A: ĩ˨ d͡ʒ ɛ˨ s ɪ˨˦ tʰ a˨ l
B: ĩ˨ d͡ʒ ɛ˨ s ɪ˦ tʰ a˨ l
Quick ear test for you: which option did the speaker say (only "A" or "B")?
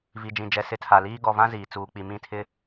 A